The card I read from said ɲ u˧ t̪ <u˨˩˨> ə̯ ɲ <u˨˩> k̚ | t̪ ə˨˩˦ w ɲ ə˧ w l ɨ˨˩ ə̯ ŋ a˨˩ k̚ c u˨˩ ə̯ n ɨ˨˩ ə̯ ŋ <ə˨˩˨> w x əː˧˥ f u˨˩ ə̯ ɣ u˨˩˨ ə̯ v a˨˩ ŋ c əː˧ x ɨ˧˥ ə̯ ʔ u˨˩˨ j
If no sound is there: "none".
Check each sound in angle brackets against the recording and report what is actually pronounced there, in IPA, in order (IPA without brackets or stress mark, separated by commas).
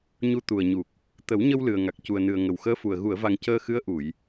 u˨˩, u˨˩, ə˨˩